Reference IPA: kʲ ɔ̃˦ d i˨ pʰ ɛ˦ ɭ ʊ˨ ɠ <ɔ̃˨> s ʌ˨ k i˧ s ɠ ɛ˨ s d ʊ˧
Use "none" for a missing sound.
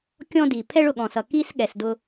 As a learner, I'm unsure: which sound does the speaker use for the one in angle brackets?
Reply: ɔ̃˨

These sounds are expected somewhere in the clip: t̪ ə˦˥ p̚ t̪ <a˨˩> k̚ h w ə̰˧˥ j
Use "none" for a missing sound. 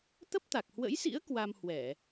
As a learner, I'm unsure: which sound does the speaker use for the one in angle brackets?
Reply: a˨˩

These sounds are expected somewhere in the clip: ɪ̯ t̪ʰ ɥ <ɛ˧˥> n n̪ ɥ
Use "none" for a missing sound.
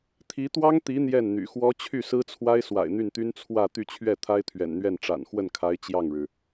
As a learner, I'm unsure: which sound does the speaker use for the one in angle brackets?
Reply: ɛ̰˨˩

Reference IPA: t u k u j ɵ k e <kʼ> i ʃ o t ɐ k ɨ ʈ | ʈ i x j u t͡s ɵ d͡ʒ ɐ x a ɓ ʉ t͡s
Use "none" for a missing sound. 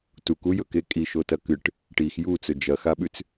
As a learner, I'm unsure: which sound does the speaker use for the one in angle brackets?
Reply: kʼ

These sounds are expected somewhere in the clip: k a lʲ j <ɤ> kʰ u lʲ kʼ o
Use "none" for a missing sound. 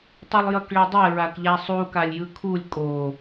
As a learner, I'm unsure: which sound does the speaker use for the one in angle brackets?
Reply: ɯ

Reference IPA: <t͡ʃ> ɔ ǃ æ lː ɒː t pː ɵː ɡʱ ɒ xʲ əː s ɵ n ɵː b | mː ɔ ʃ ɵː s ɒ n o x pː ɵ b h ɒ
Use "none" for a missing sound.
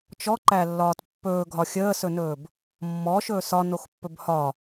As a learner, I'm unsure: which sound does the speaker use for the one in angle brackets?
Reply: t͡ʃ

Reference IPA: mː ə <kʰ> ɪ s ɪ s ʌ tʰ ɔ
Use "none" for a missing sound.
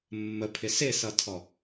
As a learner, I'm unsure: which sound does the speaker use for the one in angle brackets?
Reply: pʰ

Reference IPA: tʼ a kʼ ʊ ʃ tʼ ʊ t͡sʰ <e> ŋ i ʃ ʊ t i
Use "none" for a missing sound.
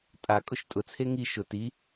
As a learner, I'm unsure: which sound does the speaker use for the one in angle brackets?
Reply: e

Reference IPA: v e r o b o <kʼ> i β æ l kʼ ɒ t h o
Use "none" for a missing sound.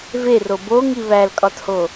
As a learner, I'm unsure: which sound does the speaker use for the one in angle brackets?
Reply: ŋ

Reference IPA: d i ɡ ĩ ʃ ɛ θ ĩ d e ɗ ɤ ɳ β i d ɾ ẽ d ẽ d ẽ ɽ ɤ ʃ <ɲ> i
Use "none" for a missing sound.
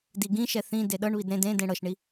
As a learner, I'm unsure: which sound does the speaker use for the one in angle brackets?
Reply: ɳ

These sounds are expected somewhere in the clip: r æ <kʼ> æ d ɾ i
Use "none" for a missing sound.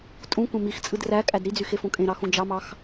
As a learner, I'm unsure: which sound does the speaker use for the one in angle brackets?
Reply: kʼ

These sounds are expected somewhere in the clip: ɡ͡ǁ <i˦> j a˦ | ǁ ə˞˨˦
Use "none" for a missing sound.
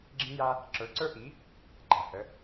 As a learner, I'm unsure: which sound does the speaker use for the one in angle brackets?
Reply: ĩ˦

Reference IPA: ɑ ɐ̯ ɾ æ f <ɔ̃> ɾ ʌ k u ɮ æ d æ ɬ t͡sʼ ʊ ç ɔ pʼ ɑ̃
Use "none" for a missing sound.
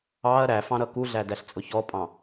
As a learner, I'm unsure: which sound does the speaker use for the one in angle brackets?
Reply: ɑ̃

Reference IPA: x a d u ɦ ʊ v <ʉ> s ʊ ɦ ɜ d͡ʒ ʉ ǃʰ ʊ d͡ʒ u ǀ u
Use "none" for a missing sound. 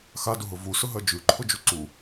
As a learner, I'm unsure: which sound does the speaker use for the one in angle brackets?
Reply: u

